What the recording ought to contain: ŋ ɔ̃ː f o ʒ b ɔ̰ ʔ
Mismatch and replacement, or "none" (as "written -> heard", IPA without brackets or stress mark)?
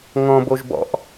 f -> b